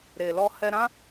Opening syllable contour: low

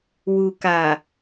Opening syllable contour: low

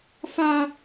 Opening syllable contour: high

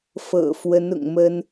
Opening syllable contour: low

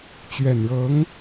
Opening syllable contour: low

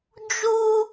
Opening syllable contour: high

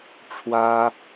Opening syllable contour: high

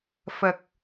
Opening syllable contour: low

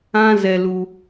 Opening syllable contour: high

